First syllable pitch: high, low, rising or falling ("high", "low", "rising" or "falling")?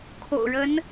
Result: low